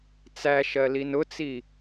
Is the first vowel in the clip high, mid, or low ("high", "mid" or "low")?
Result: low